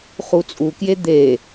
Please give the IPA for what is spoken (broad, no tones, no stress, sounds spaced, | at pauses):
χ u t͡sʼ u k j e d̪ e